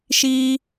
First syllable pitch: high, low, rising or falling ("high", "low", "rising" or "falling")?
high